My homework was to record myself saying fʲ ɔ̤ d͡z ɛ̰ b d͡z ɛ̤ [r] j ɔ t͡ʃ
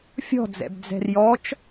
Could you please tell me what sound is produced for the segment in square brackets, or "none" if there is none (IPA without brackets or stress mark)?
r